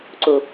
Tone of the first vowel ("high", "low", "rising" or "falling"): low